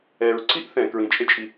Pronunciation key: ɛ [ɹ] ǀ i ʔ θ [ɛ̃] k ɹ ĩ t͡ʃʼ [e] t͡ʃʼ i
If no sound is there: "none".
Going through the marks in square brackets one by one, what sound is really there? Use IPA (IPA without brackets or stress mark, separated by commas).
ɹ, ɛ̃, e